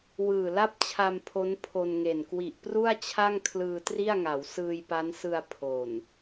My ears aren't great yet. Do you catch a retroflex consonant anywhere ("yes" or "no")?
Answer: no